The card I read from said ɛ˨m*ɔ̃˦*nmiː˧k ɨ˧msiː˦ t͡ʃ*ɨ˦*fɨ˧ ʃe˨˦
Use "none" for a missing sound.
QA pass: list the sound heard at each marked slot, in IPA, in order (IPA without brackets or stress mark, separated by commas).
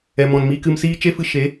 ɔ̃˨, e˦